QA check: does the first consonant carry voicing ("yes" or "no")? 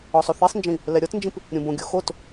no